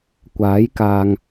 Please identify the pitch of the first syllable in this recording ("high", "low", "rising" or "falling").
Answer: rising